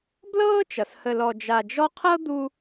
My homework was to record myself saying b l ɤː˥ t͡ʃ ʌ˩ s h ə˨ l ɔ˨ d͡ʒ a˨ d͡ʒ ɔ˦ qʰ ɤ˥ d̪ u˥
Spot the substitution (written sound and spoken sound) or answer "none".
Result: none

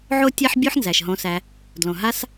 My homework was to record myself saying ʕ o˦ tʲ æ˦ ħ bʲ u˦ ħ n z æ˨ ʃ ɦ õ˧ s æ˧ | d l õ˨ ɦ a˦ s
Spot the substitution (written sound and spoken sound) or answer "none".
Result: none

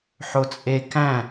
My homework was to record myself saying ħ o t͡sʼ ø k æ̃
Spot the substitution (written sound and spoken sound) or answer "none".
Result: ø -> e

